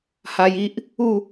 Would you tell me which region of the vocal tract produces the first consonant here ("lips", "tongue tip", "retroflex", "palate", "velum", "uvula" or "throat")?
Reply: throat